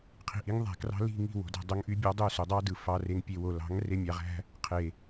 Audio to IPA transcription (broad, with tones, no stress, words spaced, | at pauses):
qʰi̤˨ʔi˨˦ŋ ðˤæ̤˨ krɑ̤˧li̤˦˨ŋi̤˦˨ wo̤˨dæ̤˦˨ dˤo˧ŋʔy˧bʲɑ˧dˤø˦˨ so˨dˤɑ˦dɯ˨ fɑ˨re˨ŋ pʲe˨wo˨ lɑ̤˨˦ŋ re˧mʲɑ˨ʁæ̤˦ | qʰe˨